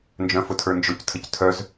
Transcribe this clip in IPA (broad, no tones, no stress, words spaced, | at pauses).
nd͡ʒœ̃fʊtʰə˞nd͡ʒʊc tʰəctʰœz